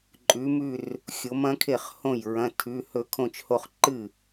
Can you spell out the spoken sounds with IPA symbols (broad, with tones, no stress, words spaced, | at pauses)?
ǃʼʉ˨˥mʉ˥˧r | xʲo˨˥mɐ̃˨˥kʰe˥˩χhõ˥˩j ɹɐ̃˧˥˧tʰʉ˧˥˧hɵ˥˧ kʰõ˥˧t͡ʃho˥˧χ ǃɨ˥˩